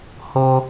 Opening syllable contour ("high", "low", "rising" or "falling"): high